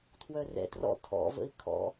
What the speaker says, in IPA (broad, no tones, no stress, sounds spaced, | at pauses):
tʰ w œ r ɛ̰ t r ɔ̰ tʰ ɔ̰ v ə̰ ɪ̯ kʰ ɔ̰